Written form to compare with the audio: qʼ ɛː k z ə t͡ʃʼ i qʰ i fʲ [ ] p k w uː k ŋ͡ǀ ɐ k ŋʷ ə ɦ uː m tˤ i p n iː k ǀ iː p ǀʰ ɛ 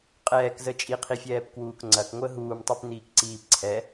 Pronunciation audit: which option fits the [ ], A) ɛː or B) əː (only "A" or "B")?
A